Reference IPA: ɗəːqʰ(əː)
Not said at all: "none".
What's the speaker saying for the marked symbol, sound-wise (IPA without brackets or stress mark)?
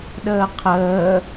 əː